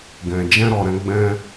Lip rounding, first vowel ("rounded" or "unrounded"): unrounded